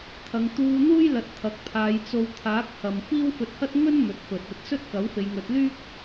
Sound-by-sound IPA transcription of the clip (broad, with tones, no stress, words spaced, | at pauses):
t̪ʰɐ˨˧ŋ t̪uː˧n̪uː˥jlɐ˨t̚ t̪ʰɐ˨˥k̚pʰaː˨˧jt͡so˧w t̪ʰaː˨˥k̚hɐ˨mfiː˥w fɵ˧t̚hɐ˥t̚ ŋɵ˥n mɵ˨˥t̚fɵ˨t̚ ɐ˧t̚sɵ˥t̚ kɐ˨˥w fe˨˧jŋɵ˨˥t̚ lyː˥k̚